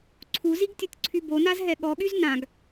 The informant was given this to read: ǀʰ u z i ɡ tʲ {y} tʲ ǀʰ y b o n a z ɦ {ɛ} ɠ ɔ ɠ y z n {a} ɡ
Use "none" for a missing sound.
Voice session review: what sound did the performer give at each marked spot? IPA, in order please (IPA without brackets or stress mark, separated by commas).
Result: u, ɛ, ã